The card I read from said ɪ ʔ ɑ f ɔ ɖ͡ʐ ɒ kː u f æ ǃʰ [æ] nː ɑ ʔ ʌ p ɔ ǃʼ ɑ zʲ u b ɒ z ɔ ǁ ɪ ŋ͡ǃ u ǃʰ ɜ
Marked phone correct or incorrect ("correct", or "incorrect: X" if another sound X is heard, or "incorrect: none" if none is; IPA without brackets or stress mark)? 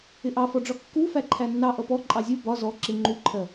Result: correct